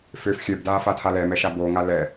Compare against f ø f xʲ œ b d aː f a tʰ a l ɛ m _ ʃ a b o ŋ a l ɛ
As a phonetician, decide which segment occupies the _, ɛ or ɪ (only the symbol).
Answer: ɛ